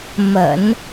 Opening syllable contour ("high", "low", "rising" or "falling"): low